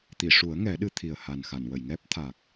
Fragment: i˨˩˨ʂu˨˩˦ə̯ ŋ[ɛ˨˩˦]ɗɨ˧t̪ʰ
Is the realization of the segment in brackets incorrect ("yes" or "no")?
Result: no